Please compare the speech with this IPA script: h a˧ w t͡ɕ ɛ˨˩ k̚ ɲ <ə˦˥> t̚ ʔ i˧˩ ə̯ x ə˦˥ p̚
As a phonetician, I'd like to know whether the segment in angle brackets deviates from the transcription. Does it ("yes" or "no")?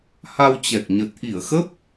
yes